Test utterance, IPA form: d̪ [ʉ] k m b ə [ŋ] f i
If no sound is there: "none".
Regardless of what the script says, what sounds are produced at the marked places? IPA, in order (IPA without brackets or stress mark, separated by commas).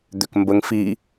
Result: ø, ŋ